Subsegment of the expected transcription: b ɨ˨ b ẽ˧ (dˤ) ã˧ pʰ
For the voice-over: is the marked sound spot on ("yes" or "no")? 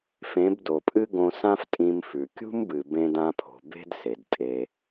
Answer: no